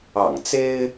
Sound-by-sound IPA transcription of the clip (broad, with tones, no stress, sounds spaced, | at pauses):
ɑ̰˨˩ ŋ t͡s e˥ ɪ̯